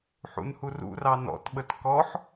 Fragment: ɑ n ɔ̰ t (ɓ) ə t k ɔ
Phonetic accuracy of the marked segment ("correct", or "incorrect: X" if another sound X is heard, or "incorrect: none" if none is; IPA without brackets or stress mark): correct